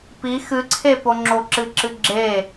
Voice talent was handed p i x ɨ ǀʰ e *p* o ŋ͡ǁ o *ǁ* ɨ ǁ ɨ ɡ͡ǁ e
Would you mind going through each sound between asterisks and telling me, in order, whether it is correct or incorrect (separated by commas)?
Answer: correct, correct